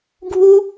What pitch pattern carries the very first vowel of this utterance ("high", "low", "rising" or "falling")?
high